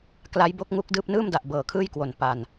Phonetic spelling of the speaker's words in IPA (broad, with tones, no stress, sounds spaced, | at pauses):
k l a˦˥ j b o˦˥ k̚ ŋ u˦˥ k̚ d ɯː˦˥ p̚ n ɯː˥˩ m d a˨˩ ʔ b ɤː˨˩ kʰ ɯː˥˩ j k w o˨˩ n p a˨˩ n